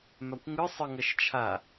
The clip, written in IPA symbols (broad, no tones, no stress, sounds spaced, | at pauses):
m a kʷ ŋ ɯ sˤ ɯ ŋ ʌ ʃ t͡ʃʰ a